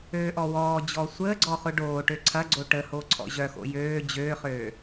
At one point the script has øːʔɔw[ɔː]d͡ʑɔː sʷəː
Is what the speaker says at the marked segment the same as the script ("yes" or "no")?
yes